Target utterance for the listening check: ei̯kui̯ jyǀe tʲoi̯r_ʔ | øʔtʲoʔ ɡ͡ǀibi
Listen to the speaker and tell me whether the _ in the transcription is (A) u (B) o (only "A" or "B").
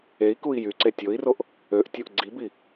B